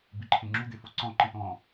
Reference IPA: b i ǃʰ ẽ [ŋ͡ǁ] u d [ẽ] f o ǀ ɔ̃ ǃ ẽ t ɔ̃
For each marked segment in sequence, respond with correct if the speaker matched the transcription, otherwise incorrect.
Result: correct, incorrect: e

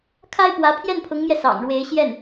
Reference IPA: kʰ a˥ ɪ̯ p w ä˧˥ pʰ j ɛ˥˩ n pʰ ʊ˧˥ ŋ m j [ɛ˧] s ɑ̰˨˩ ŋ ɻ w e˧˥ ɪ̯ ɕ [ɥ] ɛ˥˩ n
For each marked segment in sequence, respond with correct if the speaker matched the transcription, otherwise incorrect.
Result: correct, incorrect: j

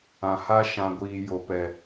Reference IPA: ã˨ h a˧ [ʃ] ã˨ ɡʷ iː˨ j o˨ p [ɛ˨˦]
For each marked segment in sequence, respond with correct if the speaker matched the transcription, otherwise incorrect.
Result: correct, incorrect: ɛ˨

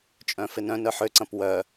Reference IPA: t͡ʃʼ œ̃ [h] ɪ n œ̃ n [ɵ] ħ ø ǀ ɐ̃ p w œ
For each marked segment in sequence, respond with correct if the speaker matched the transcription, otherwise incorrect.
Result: incorrect: f, incorrect: œ

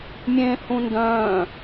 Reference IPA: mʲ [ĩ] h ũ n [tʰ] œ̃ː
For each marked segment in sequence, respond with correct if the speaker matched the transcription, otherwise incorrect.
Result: incorrect: ẽ, incorrect: d

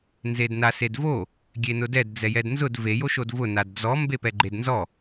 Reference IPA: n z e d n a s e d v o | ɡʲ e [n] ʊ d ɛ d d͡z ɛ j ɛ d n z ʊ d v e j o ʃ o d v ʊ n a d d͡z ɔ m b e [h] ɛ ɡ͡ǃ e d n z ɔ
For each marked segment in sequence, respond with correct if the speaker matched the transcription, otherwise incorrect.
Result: correct, incorrect: p

